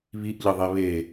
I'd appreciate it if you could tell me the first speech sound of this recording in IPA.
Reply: β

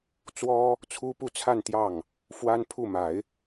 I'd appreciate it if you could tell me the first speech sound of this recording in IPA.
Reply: t͡s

